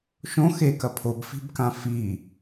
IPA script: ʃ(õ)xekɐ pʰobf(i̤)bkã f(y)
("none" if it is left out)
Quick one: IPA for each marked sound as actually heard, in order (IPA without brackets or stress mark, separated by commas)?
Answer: õ, i̤, i